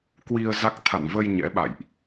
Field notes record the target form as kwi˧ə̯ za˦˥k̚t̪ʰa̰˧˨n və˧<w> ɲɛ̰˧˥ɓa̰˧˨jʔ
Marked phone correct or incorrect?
incorrect